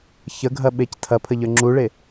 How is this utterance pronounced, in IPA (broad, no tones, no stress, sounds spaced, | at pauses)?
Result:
ç ə ɡʱ ɐ ɓ e c tʰ ɐ pʰ ə ʎ ə˞ ŋ͡ǁ u ɭ e